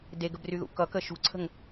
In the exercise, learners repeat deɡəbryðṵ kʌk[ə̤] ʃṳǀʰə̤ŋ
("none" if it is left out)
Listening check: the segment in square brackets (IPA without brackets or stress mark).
ə